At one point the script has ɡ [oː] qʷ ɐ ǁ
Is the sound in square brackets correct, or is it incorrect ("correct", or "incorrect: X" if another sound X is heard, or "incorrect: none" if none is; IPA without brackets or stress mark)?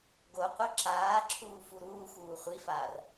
incorrect: o